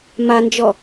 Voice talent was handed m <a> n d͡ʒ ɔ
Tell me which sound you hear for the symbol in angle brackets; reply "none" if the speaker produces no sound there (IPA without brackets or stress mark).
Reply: a